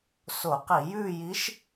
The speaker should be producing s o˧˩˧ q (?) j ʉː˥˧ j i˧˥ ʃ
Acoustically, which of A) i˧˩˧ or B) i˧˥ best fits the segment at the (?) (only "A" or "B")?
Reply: A